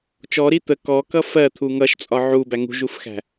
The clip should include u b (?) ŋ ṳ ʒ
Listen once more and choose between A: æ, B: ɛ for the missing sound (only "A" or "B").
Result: A